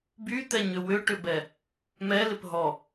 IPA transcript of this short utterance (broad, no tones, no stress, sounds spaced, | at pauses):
b y t̪ ɛ ɲ ʏ w ʏ ʈ ʏ b ɛ | m ɛ l ɪ p ɦ ɔ